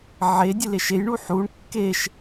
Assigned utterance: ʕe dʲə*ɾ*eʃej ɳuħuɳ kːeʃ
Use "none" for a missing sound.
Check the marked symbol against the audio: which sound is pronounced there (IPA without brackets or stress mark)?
l